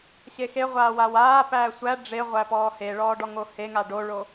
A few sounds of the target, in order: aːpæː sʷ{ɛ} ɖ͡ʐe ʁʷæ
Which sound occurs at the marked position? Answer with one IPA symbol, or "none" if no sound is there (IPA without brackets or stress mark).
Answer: æ